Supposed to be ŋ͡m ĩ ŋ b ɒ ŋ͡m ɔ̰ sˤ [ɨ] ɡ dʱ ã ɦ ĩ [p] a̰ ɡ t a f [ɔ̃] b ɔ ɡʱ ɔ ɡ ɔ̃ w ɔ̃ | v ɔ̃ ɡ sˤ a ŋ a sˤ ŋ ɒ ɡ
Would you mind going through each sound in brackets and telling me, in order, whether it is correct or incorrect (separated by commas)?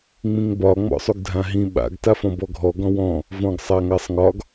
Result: incorrect, incorrect, correct